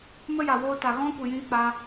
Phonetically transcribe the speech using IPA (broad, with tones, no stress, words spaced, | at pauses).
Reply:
mə˦ja˨woː˧ta˨ ɣɔ̃˦kʷi˨jĩ˧ k͡pa˧